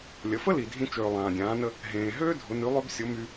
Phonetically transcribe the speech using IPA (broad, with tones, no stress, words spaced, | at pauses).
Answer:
lʲə˩˧fə˥ li˩ dʱĩ˧ t͡ʃøː˩ lˠãː˩dʲãː˩˧nə˧ | ɦẽː˩ ɦøː˥dʱʊ˩˧ ny˩˧lˠø˧bsʲʊ˩˧ my˧